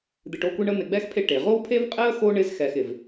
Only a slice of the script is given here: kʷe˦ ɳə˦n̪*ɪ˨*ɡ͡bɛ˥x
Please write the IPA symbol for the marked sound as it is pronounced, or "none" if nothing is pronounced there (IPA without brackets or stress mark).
ɪ˨